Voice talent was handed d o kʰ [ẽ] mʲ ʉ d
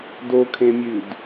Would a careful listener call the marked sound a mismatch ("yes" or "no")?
no